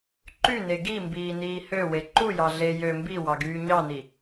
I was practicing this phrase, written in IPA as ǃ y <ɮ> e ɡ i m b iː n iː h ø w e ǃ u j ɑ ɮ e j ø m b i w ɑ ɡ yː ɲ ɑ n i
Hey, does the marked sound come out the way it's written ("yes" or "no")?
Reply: no